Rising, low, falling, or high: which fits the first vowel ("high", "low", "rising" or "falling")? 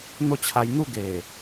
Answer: falling